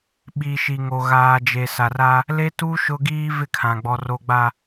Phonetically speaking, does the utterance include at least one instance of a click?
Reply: no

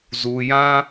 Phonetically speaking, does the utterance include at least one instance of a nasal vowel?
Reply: yes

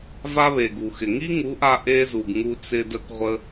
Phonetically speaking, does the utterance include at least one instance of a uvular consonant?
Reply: yes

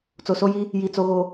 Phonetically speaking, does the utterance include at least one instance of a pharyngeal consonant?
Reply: no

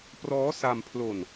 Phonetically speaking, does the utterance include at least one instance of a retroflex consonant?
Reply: no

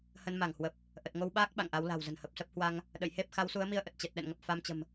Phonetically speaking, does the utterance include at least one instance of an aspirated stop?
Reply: no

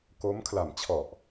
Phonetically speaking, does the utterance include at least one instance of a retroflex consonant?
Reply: no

